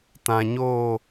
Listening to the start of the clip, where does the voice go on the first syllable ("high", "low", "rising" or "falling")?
low